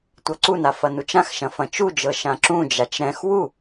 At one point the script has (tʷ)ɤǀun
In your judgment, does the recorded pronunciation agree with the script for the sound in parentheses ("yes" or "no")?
yes